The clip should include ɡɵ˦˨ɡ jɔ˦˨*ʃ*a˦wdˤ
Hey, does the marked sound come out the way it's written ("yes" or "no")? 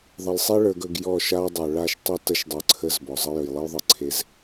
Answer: yes